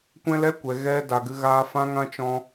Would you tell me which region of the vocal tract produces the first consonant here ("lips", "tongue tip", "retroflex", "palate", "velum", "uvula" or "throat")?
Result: velum